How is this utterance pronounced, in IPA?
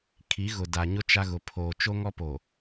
kʰi˨˦ɣʊ˨da˨ɲʊ˦ t͡ʃa˦ɣʊ˨ pʰoː˨ t͡ʃo˦ŋɔ˦po˨

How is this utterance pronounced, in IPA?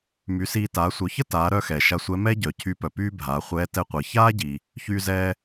my˩˧siː˧ taː˩˧sʷœ˩˧çə˥ taː˩˧ɾœ˧ xɛː˩ʃa˧sʷɛ˧˥ mɛ˥ɟœ˩ cʰy˧pœ˩ pyː˥bʱaː˩˧χʷɛː˧˥ tɛ˧qʷəː˩˧ çaː˥ɟi˩ | çyː˧zɛː˧

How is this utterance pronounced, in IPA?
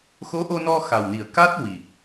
xo˧˥ʔo˧nɔ˧ xa˨˩wni˨˩ə̯ ka˦˥t̚ wi˨˩k̚

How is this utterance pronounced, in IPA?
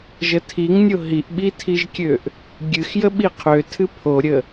ʒətʰiŋnʲo ɦiʔɓitʰiʒkʲøʔ | ɡʲɨx jəɓiqʰøtʰɨ pʰoɾʲə

